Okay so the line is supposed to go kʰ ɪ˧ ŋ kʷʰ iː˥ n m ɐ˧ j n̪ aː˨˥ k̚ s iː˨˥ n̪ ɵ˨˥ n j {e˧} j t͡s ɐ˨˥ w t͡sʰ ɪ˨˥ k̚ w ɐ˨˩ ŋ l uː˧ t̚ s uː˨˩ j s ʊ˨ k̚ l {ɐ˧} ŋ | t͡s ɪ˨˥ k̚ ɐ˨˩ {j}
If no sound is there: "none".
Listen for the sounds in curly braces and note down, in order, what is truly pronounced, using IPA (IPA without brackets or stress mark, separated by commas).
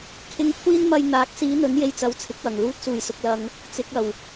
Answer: e˧, ɐ˧, w